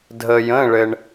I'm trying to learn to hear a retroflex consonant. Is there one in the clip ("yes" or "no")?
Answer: yes